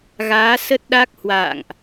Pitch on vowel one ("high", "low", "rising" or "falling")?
rising